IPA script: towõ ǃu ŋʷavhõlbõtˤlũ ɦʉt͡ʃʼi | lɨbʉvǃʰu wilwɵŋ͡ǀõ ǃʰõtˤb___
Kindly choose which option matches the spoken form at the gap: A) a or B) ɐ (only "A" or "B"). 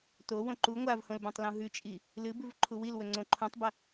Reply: B